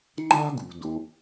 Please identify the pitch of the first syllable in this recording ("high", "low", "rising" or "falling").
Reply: high